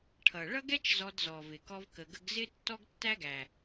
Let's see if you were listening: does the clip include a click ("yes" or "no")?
no